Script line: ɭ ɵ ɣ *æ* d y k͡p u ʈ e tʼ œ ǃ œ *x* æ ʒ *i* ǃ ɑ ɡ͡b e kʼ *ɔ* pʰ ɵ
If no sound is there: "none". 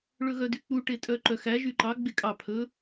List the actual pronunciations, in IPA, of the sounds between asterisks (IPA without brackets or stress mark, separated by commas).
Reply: œ, x, y, ɑ